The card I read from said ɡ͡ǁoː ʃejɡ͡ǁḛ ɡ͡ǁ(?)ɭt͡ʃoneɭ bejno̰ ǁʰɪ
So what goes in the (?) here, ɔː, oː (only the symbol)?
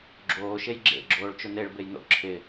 oː